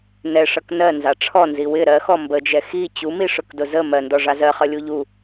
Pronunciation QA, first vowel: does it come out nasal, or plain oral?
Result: oral